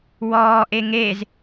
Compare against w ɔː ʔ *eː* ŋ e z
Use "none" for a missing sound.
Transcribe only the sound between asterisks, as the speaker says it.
e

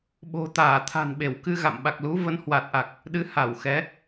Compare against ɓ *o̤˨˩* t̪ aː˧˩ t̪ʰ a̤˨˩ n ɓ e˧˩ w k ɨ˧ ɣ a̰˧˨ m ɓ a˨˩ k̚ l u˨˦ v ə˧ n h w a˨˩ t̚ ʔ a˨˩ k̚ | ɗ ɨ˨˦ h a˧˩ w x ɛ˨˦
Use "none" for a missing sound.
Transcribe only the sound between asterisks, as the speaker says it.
o̤˨˩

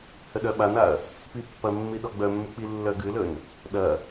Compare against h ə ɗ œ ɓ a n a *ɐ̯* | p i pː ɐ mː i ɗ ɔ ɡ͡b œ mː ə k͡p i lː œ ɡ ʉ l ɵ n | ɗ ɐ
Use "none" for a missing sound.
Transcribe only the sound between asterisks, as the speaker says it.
ɐ̯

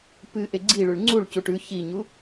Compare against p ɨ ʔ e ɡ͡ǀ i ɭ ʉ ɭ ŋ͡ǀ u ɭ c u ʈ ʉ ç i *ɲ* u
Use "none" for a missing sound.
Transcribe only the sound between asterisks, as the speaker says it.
ɲ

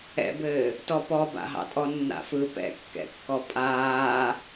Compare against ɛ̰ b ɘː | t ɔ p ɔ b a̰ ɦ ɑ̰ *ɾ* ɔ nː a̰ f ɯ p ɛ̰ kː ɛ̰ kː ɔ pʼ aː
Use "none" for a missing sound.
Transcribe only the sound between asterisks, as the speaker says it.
tʼ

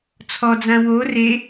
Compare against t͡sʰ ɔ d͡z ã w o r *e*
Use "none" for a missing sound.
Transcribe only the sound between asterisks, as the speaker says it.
e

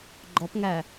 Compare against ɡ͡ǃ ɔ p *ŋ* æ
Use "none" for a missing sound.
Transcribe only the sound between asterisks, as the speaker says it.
ŋ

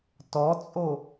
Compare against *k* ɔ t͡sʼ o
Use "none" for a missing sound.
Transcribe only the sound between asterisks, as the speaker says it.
t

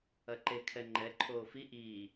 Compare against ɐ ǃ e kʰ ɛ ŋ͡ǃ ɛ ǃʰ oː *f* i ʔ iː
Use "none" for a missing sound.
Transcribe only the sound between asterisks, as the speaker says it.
f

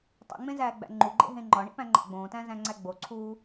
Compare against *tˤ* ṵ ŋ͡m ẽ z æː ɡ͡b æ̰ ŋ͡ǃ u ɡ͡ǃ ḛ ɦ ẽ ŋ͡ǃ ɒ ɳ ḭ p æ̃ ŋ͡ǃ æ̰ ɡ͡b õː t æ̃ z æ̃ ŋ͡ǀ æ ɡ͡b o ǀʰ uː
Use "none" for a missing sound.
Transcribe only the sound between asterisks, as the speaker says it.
tˤ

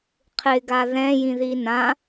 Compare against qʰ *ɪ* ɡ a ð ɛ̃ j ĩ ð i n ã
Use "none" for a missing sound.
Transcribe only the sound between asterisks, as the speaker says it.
ɪ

